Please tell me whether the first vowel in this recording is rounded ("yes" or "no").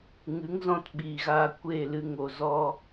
no